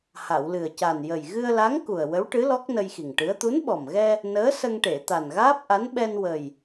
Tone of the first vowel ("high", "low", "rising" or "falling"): low